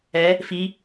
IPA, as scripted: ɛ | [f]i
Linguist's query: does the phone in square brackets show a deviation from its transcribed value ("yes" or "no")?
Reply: no